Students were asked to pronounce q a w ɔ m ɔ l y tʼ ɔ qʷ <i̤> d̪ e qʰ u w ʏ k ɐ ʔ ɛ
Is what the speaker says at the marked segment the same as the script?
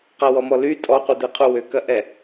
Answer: no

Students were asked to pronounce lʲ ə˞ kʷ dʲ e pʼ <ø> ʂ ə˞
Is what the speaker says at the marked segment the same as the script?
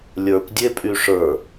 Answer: no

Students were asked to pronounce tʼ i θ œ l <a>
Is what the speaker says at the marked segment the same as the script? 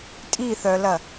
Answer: no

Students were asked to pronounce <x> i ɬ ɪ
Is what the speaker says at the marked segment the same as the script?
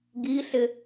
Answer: no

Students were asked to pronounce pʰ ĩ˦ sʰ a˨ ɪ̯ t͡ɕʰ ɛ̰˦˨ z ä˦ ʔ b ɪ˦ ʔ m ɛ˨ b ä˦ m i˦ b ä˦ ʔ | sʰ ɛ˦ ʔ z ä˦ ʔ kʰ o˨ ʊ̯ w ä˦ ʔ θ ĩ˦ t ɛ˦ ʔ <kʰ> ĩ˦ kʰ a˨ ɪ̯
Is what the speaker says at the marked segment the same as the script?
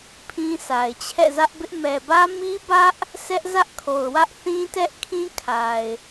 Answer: yes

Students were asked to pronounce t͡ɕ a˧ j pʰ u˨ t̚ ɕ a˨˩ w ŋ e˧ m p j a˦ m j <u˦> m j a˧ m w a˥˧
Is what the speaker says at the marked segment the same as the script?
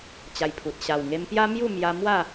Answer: no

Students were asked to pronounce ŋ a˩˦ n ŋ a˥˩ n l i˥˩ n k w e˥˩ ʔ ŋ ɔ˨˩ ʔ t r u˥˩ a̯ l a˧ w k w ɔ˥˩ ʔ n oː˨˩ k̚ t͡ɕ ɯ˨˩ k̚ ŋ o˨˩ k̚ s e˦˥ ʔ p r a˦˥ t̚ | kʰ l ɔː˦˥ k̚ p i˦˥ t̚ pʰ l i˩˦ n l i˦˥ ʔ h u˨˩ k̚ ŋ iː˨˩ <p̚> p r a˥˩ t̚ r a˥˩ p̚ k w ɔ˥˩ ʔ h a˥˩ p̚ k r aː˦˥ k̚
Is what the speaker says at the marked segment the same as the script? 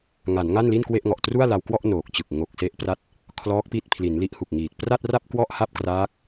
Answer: no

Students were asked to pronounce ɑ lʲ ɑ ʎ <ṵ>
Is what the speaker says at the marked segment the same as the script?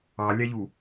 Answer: no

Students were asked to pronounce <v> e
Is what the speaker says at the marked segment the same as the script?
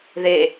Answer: no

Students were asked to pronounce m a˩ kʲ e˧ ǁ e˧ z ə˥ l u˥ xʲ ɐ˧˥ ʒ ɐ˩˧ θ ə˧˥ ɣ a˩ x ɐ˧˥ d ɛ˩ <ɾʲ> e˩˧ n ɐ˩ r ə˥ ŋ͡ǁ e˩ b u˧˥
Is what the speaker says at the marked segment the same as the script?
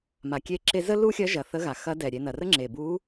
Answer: yes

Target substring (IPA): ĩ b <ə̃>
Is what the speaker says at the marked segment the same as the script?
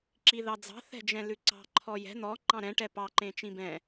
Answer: no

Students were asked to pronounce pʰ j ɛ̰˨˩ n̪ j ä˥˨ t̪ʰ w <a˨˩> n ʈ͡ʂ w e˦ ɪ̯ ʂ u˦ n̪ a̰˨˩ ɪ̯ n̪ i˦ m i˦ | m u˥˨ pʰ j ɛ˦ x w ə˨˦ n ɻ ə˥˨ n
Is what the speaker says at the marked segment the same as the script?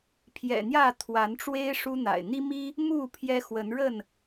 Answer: no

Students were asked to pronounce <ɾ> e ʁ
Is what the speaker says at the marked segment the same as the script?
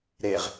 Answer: yes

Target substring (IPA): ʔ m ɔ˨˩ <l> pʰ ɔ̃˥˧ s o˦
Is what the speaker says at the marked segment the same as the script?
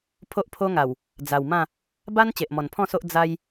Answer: no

